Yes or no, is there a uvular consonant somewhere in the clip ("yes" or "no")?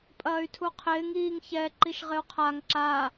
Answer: yes